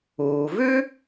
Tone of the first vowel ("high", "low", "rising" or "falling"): low